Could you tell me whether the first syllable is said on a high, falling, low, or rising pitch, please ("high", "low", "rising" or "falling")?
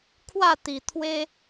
falling